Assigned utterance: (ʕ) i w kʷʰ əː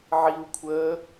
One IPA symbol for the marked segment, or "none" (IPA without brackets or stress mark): ʕ